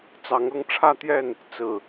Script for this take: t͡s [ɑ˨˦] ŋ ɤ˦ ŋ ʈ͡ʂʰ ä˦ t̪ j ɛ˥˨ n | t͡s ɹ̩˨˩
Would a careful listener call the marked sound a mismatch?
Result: no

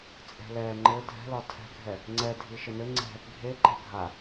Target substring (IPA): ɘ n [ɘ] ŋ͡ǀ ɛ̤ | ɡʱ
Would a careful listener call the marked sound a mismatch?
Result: no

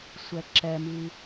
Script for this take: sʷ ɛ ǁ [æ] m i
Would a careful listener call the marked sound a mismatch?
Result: yes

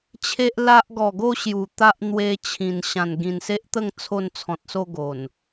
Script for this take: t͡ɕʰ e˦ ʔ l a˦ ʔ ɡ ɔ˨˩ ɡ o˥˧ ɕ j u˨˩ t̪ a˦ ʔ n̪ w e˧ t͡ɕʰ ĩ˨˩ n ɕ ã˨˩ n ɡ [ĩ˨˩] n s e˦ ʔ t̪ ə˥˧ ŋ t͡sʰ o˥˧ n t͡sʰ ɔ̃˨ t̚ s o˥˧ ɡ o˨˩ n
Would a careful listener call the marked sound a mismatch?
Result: no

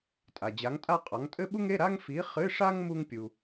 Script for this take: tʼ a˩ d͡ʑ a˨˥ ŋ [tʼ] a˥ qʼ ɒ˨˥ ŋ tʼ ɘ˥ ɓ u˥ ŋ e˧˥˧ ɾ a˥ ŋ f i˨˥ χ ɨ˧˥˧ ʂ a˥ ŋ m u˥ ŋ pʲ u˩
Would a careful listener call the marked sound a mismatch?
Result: no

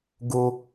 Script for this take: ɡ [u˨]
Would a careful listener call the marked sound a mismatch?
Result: yes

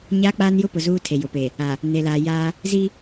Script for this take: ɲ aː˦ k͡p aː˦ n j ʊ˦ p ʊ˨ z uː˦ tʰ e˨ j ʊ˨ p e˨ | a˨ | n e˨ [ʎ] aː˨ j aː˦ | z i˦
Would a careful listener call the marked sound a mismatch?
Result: yes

